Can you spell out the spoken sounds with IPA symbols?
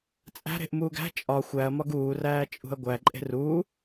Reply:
t͡sʼæ̤ɾe̤ʔ muːɡæ̤ t͡ʃʼɒ xʷæɐ̯mɒɡ uːræː t͡ʃʼṳɐ̯ɡʷæ ǃʼe̤ruː

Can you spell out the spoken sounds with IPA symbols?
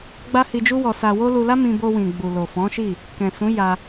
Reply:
ɡ͡ba˦hi˧d͡ʒu˦wɔ˧ sa˧wo˦ lu˧la˦ mĩ˧bo˧wĩ˨ ɡ͡bu˨lo˨fɔ̃˨˦ʃi˦˨ | kɛ̃˨sũ˨˦ ja˧

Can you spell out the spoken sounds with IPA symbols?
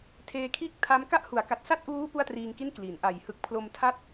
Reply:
tʰeː˧kʰiː˥˩k̚tʰa˦˥m ka˥˩ʔhu˩˦a̯ka˨˩t̚ sa˥˩t̚ʔuː˦˥ pu˥˩a̯triː˧ŋki˥˩n kli˩˦nʔa˨˩jhɯ˦˥k̚ pʰlo˧mtʰa˥˩t̚

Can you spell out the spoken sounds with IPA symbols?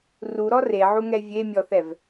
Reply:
ruɾɔ reʕuŋɛ vʲemʲɔθɛv

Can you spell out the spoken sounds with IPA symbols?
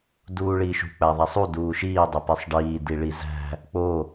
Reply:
duːɭiːʃṳ k͡pæðˤæsˤu duːʃiː dˤipesˤɖiː diɭizæ̤ | k͡po

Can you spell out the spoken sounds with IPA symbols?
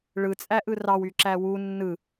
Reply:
ɭɯt͡sʼæʔɯ rɑwyǁæ wu nːɯ

